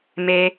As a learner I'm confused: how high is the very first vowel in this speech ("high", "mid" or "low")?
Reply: mid